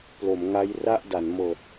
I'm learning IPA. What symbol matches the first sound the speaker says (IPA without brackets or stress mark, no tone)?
p